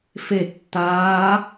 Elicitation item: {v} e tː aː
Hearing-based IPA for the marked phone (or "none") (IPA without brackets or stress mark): f